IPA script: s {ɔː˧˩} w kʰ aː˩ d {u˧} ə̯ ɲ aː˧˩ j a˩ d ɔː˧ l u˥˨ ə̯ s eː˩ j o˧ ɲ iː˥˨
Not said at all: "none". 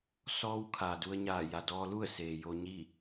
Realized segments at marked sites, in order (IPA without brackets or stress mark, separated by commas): ɔː˧, u˧